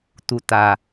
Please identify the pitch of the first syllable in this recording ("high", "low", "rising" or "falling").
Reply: low